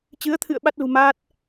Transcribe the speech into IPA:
t͡ɕ ɨ˨˦ ə̯ t̪ʰ ɨ̰˧˨ ə̯ ɓ a˦˥ t̚ l ṳ˨˩ m aː˦˥ t̚

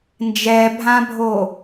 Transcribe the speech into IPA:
n d͡ʒ ɛ bʱ ã bʱ o

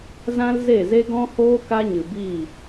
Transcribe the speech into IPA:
z ã˦ l z e˦˨ z e˦ ɡ ɔ̃˦ h oː˦ k a˦ ɲ ɨ˨ b i˦˨

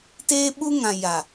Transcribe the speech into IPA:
t eː˦ ɓ u˦ ŋ ã˨ j a˨

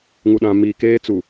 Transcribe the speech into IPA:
ŋ u˨ ɗ ã˨ m iː˨ k eː˦ t͡s u˨

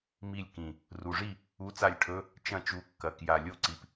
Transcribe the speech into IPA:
m i˥˩ lʲ k ĩ˨˩ | r u˨˩ ʐ i˥˩ | u˧˥˧ t͡s a˥˩ lʲ ʈʰ ɵ˧˥˧ | t͡ʃ ɐ̃˥˩ t͡ʃ u˨˥ kː ɐ˨˩ k j a˨˩ lʲ o˥˩ ǀ i˨˩ p

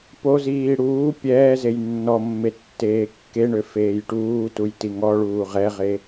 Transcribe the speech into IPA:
p o z iː ɽ uː pʲ ɛː z e j nː ɔ mː e tː eː kː e ɳ ø f eː j ʈ uː t u j t i ŋ ɔ ɭ uː ʁ ɛ ʁ e

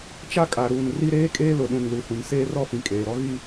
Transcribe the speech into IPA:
t͡ʃ a˦ kʼ a˨ ɾ uː˨ n r i˦ ɾ eː˦ kʼ eː˦ l ʊ˨ ɗ ũ˨ n l u˨ h ũ˨ n s eː˦ r ɔ˦ f ĩ˨ kʼ eː˨ ɾ ɔ˦ ɣ i˦

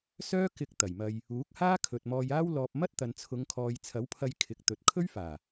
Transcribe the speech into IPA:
s œː˥ k ɪ˧ k̚ t̪ ɐ˨˩ j m ɐ˧ j | uː˨˥ k̚ h aː˥ kʰ ɵ˨ t̚ m ɔː˧ j aː˥ w l ɔː˧ p̚ m ɐ˥ t̚ t̪ ɐ˨ n t͡sʰ ʊ˨˧ ŋ kʰ ɔː˨ j t͡sʰ ɐ˨˥ w pʰ ɐ˧ j kʰ ɪ˨˥ k̚ t̪ ɵ˨ t̚ kʰ ɵ˥ ɥ f aː˨˩

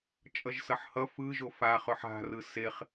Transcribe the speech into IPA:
t͡ʃʼ ʌ ʒ s ʌ ħ h ʌ f ɯ ʒ o f a χ ɵ ħ a̤ r ɯ s e χ

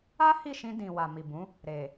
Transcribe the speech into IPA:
a˦ h i˦˨ ʃ ĩ˧ d ĩ˨ w a˨ m i˨ b ũ˨˦ | ɾ e˨

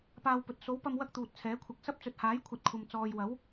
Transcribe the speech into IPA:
p aː˧ w p ɵ˨ t̚ s o˨˥ w p ɐ˧ m w ɐ˥ k̚ t̪ uː˨ t̚ t͡sʰ ɛː˨˥ kʷʰ ɐ˧ k̚ s ɐ˥ p̚ t͡s ɵ˨ t̚ h aː˨˥ j kʷʰ ɐ˨˥ t̚ kʷʰ ɐ˨ m t͡s ɔː˨ j w ɐ˨˥ w

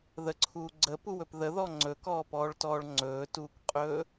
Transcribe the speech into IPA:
ð ə ǀʰ uː ɡ͡ǀ ə p u w ɵ p ð ə ð ɔ ŋ͡ǀ ɵ k ɔː p ɔː ɭ t ɔː ɭ ŋ͡ǀ ɵː t uː k qʼ ɵː

